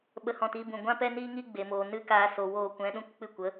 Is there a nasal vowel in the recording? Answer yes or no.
yes